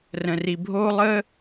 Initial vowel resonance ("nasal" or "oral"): nasal